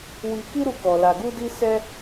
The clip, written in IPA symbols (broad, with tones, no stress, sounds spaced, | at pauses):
w i˧ k i˦ ɾ u˦ k ɔ˧ l a˧ ɡ u˦ d i˦ s ɛ˦